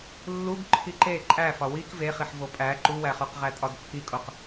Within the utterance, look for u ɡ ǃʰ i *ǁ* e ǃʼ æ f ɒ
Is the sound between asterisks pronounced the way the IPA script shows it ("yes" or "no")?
no